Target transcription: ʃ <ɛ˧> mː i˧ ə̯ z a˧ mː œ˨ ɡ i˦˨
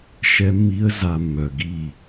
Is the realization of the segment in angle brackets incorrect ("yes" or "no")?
no